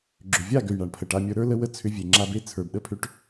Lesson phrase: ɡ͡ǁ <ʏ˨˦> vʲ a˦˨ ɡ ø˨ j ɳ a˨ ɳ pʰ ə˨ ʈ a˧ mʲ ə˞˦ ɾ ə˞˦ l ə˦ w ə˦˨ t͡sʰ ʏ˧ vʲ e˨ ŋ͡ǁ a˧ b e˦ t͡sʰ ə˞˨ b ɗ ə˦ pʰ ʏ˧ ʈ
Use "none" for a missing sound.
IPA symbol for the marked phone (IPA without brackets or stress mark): ʏ˨